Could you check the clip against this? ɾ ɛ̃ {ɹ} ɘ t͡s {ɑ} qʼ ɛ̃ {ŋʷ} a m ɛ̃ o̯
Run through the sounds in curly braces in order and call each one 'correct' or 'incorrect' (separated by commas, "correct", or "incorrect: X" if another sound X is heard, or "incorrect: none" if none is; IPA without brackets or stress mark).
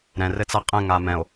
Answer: incorrect: r, incorrect: a, incorrect: ŋ